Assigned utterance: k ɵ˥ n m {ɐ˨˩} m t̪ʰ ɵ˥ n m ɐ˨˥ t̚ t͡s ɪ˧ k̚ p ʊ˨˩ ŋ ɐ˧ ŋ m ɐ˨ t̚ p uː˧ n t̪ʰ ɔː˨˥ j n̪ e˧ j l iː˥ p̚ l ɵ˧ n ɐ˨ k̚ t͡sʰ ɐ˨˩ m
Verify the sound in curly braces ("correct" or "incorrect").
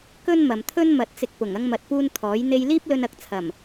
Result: incorrect